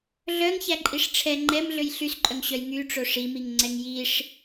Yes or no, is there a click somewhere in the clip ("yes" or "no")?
yes